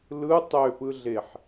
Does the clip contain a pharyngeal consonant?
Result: yes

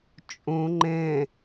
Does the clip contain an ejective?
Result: yes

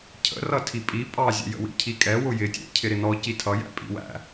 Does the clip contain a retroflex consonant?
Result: no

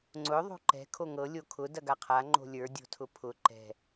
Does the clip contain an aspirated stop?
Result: yes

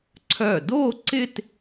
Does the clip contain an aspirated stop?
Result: yes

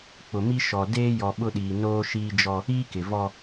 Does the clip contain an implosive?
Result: yes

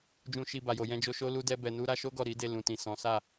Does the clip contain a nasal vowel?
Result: yes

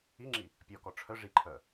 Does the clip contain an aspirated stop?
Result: yes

